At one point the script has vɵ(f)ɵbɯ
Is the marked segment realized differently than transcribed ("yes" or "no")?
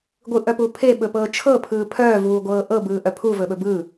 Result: yes